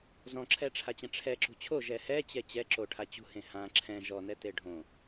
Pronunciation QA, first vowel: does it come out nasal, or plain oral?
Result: nasal